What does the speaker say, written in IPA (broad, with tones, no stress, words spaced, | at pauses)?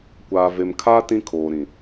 kʷaː˨ve˨mkʰaː˦ tĩ˦kʰoː˨ɾĩ˨